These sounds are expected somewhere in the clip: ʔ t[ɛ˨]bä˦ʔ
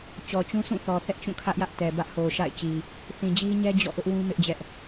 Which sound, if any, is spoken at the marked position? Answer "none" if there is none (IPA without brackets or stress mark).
ɛ˨